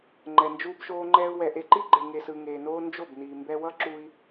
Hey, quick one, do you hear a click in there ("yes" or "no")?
yes